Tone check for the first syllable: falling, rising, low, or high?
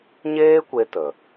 high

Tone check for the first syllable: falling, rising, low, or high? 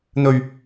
low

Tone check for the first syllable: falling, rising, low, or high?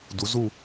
rising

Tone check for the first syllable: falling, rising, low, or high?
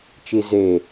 low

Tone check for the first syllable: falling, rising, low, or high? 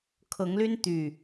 rising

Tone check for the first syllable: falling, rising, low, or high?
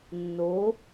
rising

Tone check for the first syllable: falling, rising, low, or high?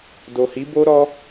low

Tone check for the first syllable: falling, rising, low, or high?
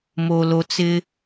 low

